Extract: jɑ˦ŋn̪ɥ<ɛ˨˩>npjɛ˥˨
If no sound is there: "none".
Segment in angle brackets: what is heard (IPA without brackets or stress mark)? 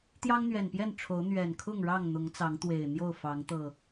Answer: ɛ˨˩